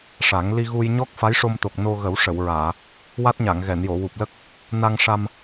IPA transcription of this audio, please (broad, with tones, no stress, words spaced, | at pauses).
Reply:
ʂa˨˩˦ŋ li˧ɣu˧j ɲɔ˦˥k̚ fa˧˥jʂo˧mt̪o˨˩k̚ no˧ɣə˨˩˦w ʂə˨˩˨wɹaː˨˩˨ | wa˦˥t̚ɲa˨˩˨ŋɣɛ˨˩˨njo˨˩˨ wu˨˩p̚lə˦˥k̚ | na˧ŋʂa˧m